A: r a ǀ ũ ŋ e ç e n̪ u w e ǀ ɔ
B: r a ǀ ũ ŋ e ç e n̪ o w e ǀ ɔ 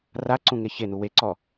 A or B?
A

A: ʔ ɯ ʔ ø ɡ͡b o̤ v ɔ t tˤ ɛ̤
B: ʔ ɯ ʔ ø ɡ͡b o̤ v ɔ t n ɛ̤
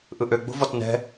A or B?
B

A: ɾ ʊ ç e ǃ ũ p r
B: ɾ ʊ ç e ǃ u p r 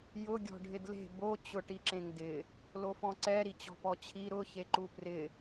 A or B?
B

